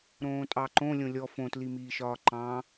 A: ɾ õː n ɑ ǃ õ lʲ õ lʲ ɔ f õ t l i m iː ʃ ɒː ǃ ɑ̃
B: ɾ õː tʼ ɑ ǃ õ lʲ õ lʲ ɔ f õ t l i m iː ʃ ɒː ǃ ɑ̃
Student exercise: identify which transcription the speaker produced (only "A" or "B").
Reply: B